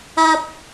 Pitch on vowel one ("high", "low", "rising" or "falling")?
high